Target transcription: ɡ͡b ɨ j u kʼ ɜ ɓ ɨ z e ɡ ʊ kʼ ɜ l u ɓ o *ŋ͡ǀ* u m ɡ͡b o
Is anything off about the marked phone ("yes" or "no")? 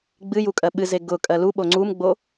no